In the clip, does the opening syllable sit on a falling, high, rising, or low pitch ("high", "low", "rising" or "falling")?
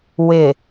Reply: low